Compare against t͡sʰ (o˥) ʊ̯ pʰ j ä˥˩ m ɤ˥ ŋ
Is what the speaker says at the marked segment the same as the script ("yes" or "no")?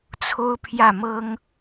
yes